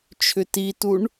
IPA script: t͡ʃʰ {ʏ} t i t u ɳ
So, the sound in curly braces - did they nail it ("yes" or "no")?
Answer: yes